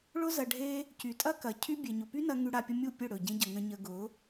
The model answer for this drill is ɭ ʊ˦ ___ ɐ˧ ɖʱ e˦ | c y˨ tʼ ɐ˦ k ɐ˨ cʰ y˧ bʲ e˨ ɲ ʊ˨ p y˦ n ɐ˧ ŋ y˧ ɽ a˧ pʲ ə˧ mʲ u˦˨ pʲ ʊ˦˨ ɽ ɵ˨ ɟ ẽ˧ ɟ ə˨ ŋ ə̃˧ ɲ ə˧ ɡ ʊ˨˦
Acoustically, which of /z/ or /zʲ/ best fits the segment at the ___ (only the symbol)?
z